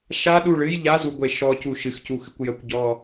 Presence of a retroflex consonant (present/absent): present